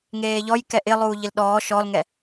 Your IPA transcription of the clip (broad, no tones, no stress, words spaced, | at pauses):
ŋeːʎɔj kɛʔɪlˠuː ʎɪlɗɔː ʃɔlŋɛ